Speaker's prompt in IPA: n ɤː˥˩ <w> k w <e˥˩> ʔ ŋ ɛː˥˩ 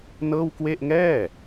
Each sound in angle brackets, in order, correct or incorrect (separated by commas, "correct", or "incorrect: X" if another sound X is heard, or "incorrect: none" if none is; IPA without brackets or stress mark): correct, correct